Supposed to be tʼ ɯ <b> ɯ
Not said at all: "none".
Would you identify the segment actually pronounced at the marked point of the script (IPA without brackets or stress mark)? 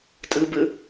b